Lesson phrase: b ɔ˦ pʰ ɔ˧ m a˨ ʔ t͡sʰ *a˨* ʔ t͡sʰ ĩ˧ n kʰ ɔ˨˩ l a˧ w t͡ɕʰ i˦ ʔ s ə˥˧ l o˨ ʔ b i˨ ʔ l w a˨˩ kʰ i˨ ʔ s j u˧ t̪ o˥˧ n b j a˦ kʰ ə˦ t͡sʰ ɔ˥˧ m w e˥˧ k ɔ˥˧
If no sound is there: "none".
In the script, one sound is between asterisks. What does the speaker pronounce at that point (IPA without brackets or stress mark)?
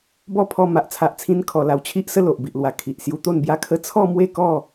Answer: a˨